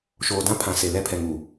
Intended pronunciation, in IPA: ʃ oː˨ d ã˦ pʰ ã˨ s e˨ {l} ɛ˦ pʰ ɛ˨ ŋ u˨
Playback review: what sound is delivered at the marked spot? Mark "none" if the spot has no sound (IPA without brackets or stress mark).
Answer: l